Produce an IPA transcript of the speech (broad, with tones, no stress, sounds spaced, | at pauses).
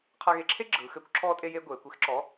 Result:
qʰ a˧ ɣ e˧ ǁʰ e˥ ɡ͡ǁ ɯː˩˧ x ɘː˨˥ kʷ ǁʰ ɔː˧ tʼ e˧ j e˧ ɡʷ eː˩˧ kʷ e˨˥ x ǁ ɔ˨˥